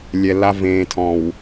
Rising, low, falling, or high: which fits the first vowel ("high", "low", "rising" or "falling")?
low